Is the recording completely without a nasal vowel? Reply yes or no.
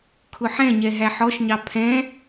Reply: no